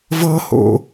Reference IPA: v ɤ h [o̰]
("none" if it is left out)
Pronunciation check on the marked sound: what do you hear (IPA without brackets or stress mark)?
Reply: o̰